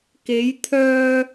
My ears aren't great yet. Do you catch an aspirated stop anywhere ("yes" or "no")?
yes